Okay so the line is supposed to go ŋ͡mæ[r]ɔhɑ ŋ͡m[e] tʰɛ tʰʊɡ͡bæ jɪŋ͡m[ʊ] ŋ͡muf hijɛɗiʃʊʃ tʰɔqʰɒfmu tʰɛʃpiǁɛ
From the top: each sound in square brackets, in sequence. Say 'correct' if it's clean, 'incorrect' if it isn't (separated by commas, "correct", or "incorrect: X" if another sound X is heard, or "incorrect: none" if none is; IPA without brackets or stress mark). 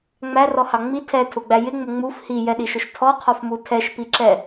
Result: correct, incorrect: i, correct